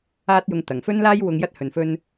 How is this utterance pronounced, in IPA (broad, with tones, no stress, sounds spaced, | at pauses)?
aː˥ t̚ j ʊ˧ ŋ t̪ ɐ˨˩ ŋ f ɵ˥ n l aː˥ j w ʊ˧ ŋ j ɐ˥ t̚ h ɵ˨ n f ɵ˥ n